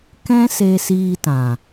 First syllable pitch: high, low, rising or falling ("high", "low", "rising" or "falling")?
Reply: high